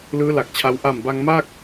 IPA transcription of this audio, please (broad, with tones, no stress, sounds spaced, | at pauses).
l ɯː˦˥ l a˨˩ k̚ t͡ɕʰ a˧ w ʔ a˨˩ m b a˧ ŋ m a˥˩ k̚